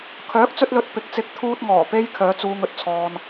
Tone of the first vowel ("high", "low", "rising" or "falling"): rising